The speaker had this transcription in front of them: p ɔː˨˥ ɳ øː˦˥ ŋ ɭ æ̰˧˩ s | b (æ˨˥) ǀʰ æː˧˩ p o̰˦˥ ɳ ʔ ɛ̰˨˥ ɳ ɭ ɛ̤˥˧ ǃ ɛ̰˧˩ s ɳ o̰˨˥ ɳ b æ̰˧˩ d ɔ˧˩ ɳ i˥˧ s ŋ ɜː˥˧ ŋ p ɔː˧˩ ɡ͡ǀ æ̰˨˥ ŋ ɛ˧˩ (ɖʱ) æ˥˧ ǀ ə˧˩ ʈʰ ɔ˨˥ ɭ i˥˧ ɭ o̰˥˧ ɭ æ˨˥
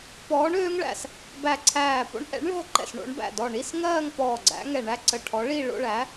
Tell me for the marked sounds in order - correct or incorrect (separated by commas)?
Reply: incorrect, incorrect